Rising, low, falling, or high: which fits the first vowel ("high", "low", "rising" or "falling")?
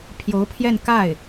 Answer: rising